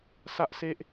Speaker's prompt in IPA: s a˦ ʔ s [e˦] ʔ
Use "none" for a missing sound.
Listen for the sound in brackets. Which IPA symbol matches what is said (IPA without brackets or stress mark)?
e˦